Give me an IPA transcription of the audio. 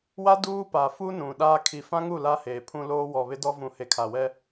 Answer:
w a˦ d uː˦ p a˨ f u˦ n ũ˨ ɗ aː˦ kʰ i˨ f ã˦ ŋ u˦˨ l a˦ h eː˨ pʰ ũ˦ l oː˦ w ɔ˨ β ɪ˦ d ɔ˦ v ũ˨ h e˨ kʰ a˨ w ɛ˦

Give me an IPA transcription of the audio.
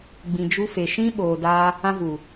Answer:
ɡ͡b ĩ˨ d͡ʒ u˧ f e˨ ʃ ĩ˦ ɓ oː˧ d aː˦ | ã˧ v u˨

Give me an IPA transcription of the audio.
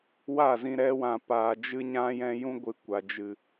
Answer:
w a˦˨ z ĩ˧ ɾ ɛ˧ w ã˨ p aː˨ d͡ʒ ɨ˧ ɲ ã˦ j ɛ̃˦ j ũ˦ ɡʷ ɨ˧ kʷ a˨ d͡ʒ ɨ˨

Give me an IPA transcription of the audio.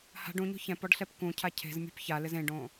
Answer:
h a̤ ɖ ũ ɲ o̤ ç ɛ̃ p ɔ ɖ ɬ ɛ p k ũ cʰ a cʰ e̤ z mʲ ṳ p ç a l ɪ z ẽ ɖ õ

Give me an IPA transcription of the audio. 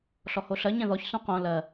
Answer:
ɬ ɔ h o ɬ ɜ ɲ ɛ̃ ð ɔ ç s ũ q õ l ɜ

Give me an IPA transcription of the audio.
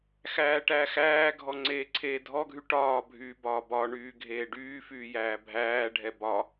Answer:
x æː ʈ æ x æː ɡʱ ɔ ŋ͡ǀ eː ǀʰ eː dʱ ɔ ɡʱ y ʈ ɒː bʱ yː b ɒː b ɒ ɳ yː ɡʱ eː ɖ yː f yː j æː bʱ æː ɖʱ ɛ b ɒ

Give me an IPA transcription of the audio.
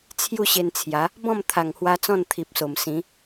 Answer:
t͡sʰ j u˥˧ ɕ e˧ n t͡sʰ j a˨˦ | b ɔ̃˥˧ m t̪ʰ a˨˩ ŋ h w a˧ t͡s ɔ̃˥˧ n t̪ʰ i˨ p̚ s o˨˩ m s ĩ˨˦

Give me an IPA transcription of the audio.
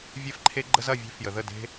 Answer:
vʲ e˧ f ǃʰ e˧ ɡ͡ǃ ə˧ z ɐ˦˨ vʲ e̤˧ f j ə˨ ð ə˦˨ d e̤˦

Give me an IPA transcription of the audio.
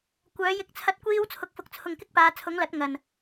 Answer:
kʷ œː˨˧ j ɪ˧ k̚ t͡sʰ ɐ˧ t̚ kʷ iː˧ w t͡sʰ ʊ˨ k̚ f ʊ˨ k̚ t͡sʰ ʊ˨ ŋ k ɪ˥ k̚ p aː˨˧ t͡sʰ ʊ˨˥ ŋ l ɐ˨˥ t̚ ŋ ɐ˨ n

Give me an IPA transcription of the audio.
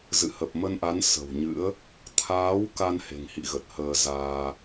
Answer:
z ɨ̰˧˨ h ə˨˩ p̚ m ə˧ n ʔ a˨˦ n s ə̤˨˩ w ɲ ɨ̰˧˥ ə̯ | t̪ʰ aː˨˦ w k a˧ n h e̤˨˩ ŋ h ḭ˧˨ ɣ ə˨˩ t̚ h əː˧ z aː˧

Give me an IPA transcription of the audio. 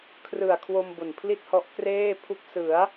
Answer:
kʰ r ɯ˨˩ a̯ kʰ w o˧ m b o˨˩ n pʰ l i˥˩ t̚ h ɔ˦˥ ʔ k r eː˥˩ pʰ u˦˥ k̚ s ɯ˩˦ a̯

